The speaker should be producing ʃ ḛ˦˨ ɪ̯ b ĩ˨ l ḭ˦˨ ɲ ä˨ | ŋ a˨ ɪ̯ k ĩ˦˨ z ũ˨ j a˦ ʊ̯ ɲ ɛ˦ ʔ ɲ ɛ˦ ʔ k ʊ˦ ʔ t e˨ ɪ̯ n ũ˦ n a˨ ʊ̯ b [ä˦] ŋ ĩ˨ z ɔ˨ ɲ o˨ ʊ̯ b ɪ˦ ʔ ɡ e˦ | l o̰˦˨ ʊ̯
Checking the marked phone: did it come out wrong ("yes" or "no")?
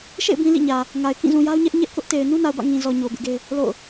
yes